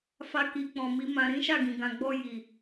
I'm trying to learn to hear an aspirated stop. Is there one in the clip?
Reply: no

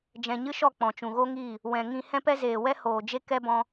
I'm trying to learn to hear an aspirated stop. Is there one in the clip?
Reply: no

